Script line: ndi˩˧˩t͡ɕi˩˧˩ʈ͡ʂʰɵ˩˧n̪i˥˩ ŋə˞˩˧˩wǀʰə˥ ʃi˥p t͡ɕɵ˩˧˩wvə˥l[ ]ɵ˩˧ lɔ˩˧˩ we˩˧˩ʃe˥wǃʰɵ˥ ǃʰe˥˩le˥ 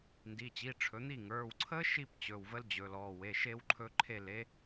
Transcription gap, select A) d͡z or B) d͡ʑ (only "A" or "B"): B